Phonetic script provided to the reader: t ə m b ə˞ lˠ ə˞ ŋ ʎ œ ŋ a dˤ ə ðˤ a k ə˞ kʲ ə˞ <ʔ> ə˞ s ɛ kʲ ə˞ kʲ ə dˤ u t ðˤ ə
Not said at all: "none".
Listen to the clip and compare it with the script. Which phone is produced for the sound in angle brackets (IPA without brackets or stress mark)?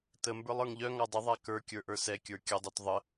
ʔ